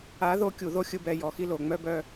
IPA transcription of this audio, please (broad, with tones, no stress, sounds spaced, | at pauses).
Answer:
a˨˦ ð o˧ kʲ u˨ ð o˦ xʲ ɯ˧ b ɛ˧ j ɔ˨ x i˦ l o˨ ŋ͡m œ˧ b œ˧